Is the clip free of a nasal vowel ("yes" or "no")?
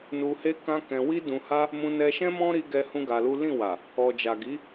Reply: no